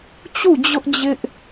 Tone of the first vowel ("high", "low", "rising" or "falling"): falling